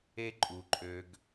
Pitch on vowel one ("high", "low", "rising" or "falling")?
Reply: high